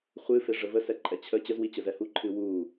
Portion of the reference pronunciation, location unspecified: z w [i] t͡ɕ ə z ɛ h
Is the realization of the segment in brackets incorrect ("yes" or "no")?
no